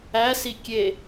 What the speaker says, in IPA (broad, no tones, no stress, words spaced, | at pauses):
æsi kʲe